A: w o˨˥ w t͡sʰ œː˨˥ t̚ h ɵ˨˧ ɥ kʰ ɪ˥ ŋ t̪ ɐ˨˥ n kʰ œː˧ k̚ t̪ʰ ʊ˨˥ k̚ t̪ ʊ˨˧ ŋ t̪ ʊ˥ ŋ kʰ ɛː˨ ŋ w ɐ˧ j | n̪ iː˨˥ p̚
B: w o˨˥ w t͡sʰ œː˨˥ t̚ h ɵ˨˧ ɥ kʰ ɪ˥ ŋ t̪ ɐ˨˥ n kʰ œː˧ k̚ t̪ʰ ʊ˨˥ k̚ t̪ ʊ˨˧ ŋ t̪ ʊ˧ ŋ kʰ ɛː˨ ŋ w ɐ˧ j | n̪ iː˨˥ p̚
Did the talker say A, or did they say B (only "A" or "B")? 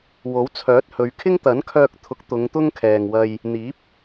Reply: A